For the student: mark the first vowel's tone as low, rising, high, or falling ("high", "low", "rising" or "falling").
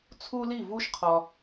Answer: high